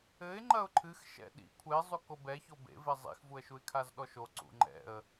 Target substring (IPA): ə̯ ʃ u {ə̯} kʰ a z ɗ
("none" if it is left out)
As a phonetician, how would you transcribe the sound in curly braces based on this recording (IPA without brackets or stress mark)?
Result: ɪ̯